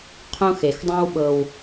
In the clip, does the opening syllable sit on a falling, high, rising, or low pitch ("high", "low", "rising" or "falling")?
high